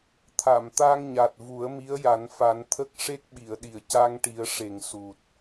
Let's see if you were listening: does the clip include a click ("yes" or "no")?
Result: no